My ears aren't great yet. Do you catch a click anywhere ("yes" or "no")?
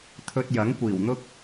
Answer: no